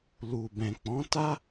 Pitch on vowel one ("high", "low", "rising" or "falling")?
low